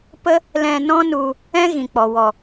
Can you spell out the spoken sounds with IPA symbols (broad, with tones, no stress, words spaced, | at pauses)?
pə˦ | lɛ̃˧nɔ̃˦nu˧ | ɛ̃˦ ɣĩ˨k͡pɔ˨ wɔ˨